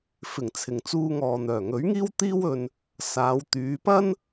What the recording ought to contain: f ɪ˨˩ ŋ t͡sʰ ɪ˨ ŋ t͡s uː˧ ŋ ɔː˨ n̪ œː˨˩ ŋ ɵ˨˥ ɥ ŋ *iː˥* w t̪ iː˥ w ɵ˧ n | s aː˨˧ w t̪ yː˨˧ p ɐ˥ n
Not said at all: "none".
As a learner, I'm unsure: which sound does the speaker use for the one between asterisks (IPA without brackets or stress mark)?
iː˥